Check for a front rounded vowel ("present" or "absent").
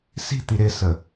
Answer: absent